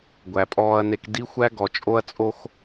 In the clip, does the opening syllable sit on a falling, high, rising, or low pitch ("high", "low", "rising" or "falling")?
low